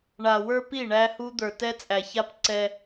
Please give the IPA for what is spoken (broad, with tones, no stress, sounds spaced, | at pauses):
ɳ a˨ w ə˞˦ p i˦˨ ɳ æ˦ h u˦ d̪ ə˞˨ t ɛ˦ t͡sʼ æ˨ ç a˦ p ǀ ɛ˦